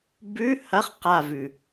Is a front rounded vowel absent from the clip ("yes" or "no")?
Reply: yes